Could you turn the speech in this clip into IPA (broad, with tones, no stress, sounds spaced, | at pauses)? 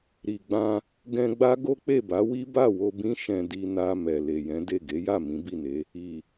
ɾ i˨ ɡ͡b ã˧ | ɡ ɛ̃˧ ɡ͡b a˦ ɡ o˦ k͡p e˦˨ b a˨˦ w i˦ b a˦˨ w o˧ b ĩ˦ ʃ ɛ̃˧ d i˧ n a˧ m ɛ˨ l e˨ j ɛ̃˨˦ d e˦˨ ɡ e˨˦ j a˦˨ m ĩ˨˦ b i˦˨ n e˨˦ | i˨